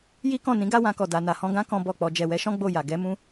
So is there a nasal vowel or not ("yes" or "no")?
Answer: yes